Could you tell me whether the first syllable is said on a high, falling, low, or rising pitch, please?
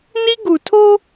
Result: high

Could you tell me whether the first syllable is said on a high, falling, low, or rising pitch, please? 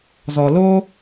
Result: low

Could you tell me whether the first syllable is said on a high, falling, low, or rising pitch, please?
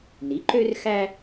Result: rising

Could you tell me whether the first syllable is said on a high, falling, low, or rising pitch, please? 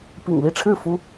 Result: low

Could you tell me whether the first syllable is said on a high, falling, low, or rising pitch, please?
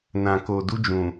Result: low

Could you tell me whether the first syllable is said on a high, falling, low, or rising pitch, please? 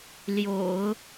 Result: low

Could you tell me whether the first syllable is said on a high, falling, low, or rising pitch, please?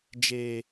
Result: low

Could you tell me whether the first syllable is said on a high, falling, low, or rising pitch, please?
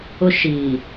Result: high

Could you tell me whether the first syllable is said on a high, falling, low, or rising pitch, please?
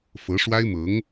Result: rising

